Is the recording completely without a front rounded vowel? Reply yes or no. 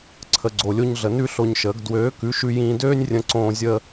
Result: no